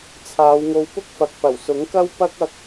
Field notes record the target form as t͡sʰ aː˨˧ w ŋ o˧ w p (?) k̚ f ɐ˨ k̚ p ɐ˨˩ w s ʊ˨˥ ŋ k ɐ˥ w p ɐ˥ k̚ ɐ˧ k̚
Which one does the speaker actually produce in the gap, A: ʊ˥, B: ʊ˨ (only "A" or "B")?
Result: A